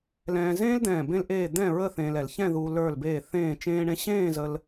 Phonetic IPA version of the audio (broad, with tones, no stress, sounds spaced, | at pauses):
l ɛ̃ː˧ z ẽː˥ l d̪ ɛ̃ː˧˩ b ẽ˥ l ʔ eː˥˧ d̪ ɛ̃˥˧ ɹ ə˥˧ θ ẽː˧ l ɛ˩˧ l ç ɛ̃˥˧ ð uː˧ l ə˞˧˩ l b eː˧˩ θ ẽː˥˧ t͡ʃ ẽː˥ ɳ ẽ˥ ɕ ẽː˥˧ z ə˧ l